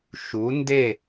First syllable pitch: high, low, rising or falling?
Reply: rising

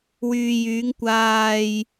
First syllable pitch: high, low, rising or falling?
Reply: low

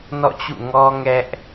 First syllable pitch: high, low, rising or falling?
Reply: falling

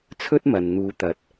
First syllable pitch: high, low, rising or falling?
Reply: high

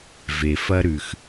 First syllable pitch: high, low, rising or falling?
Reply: low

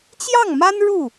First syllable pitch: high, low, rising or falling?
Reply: falling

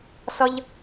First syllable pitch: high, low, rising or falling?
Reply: high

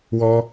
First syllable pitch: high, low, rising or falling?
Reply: high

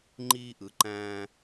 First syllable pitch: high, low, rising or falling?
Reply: high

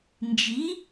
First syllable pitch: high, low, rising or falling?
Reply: rising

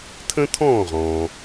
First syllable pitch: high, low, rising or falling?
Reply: high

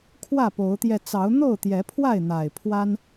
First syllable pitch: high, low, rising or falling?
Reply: falling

